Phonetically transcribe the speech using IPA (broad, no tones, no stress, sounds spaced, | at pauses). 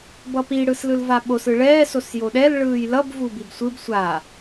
b ʌ p i ɽ ɯ s l ɯ l v a ɓ o s ɯ ɭ ɛː s o s j o ɗ ɛ l ɭ ɯː j l ʌ b v u b i b sʷ ɯ b sʷ a